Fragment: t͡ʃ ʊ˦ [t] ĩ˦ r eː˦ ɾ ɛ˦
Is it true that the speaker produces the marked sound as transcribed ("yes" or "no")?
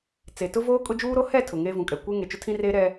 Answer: no